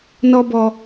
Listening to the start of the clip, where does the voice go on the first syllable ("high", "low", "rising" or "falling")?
high